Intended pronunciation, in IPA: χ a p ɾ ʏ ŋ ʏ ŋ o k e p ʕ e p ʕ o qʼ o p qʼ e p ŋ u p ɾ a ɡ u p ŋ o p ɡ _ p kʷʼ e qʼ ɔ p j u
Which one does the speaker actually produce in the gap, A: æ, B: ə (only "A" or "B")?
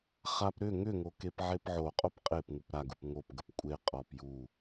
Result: B